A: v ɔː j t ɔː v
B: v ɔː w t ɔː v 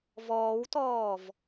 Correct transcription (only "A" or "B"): B